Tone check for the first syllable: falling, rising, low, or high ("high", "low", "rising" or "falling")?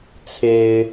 low